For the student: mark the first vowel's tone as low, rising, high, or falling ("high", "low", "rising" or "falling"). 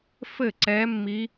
falling